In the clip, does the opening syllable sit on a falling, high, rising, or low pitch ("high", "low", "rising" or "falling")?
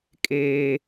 high